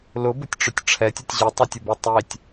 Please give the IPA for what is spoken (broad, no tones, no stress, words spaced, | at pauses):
lʊbʊtʲʈ͡ʂʊtʲ ʈ͡ʂʰɛtʲʊtʲ ʑitˤutʲʊbe tˤitʲ